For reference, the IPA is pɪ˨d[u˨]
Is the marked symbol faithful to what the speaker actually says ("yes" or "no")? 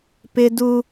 yes